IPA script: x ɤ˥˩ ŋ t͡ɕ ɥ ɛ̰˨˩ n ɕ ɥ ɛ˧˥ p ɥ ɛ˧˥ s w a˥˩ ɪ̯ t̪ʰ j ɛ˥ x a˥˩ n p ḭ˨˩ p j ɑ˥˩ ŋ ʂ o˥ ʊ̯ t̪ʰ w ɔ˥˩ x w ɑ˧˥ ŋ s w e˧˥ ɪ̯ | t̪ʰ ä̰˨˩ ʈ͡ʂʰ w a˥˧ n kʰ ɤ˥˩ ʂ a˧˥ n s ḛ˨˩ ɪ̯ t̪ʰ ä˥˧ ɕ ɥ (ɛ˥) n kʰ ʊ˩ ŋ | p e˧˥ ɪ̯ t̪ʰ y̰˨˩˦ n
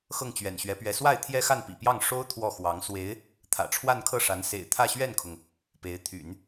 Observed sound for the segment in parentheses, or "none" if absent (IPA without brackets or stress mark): ɛ˥˩